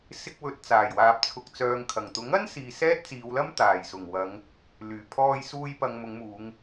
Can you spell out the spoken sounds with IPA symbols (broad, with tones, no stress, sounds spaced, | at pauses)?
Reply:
s ɪ˧ k̚ w ɵ˧ t̚ t͡s aː˨˩ j w aː˨ p̚ t͡sʰ ʊ˨ k̚ t͡s œː˨ ŋ kʰ ɐ˨˩ ŋ t̪ ʊ˨˥ ŋ ɐ˥ n s iː˧ s ɛː˥ t̚ t͡s iː˨˧ w l ɐ˥ m t̪ aː˨˩ j s ʊ˨˩ ŋ w ɐ˨˧ ŋ | l yː˨˩ pʰ ɔː˧ j s uː˧ j p ɐ˨ ŋ m ʊ˨˧ ŋ m uː˨˧ ŋ